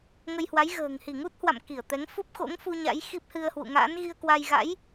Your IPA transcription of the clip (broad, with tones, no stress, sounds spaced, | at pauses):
ŋ ə˧ j h w a˨˦ j ɣ ə̤ː˨˩ ŋ h i˧˩ ŋ u˦˥ t̚ h w a̰˧˨ m k i˧˩ ə̯ t̪ ɛ˨˦ ŋ f u˦˥ p̚ x o̰˧˥ ŋ f u˧ ɲ a̰˧˥ j x i˦˥ p̚ h ɨ˧ ə̯ h w ṵ˧˨ ŋ a̰ː˧˥ n ɣ i˧ ə̯ k w a˧ j ɣ a̰˧˥ j